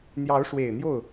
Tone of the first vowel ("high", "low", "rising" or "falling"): rising